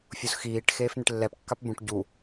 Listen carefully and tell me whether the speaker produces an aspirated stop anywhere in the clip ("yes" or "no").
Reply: no